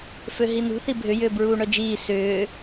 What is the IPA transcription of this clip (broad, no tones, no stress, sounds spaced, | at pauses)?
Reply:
f ø ɦ i n ṳ θ i bʱ ʏ j ʏː b ɹ uː ɳ œ d͡ʒ iː s ʏː